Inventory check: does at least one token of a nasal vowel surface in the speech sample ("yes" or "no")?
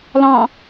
yes